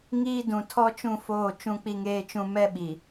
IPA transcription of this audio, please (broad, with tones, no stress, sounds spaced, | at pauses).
ŋ iː˦ d ũ˨ tʰ ɔ˦ t͡ʃ ũ˦˨ f oː˦˨ t͡ʃ ũ˦ k͡p i˦ ŋ eː˦ t͡ʃ ũ˦ m ɛ˦ ɓ i˨